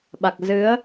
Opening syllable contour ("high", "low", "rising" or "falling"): low